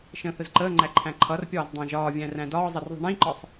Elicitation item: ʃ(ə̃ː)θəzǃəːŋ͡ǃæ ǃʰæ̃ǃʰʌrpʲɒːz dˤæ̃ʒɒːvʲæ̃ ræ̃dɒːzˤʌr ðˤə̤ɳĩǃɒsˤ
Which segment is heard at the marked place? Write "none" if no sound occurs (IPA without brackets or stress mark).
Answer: ə̃ː